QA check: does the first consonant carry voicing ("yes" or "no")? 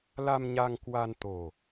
yes